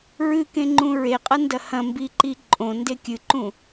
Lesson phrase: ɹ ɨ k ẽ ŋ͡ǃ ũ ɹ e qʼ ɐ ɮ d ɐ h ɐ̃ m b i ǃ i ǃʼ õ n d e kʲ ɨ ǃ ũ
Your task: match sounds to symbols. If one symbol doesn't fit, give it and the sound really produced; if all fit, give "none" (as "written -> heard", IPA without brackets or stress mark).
ɮ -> n